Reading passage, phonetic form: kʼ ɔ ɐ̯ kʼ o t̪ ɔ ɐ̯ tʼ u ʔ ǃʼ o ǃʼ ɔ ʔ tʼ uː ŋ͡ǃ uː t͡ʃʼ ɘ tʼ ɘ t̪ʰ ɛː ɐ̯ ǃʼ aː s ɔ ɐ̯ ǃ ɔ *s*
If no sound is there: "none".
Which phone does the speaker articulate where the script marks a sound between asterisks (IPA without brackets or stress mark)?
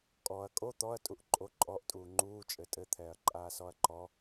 none